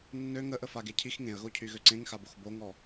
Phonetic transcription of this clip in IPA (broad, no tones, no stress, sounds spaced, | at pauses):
nː ø ŋ ə ʔ ə f a ɡ e cʰ i x ŋ ẽ ə̯ ɣ o cʰ y ɣ ø ǀ ẽ ŋ x a b o x b o ŋ ɔ